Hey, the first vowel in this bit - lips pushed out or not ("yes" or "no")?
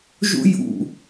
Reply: yes